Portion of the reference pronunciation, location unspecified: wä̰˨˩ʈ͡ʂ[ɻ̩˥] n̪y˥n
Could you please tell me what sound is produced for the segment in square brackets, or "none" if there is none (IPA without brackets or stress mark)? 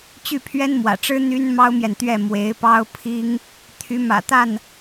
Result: ɻ̩˥